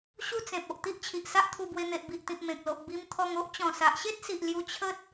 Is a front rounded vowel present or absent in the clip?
absent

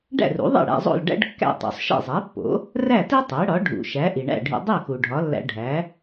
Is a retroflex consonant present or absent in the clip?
present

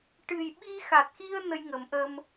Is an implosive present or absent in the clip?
present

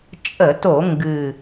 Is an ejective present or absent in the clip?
present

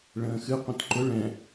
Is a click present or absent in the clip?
present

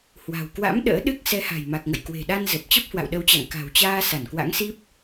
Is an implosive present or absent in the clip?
present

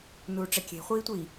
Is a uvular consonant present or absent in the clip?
present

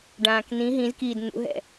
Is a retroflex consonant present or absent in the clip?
present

